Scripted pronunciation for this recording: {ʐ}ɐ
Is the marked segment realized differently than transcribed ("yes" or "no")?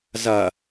yes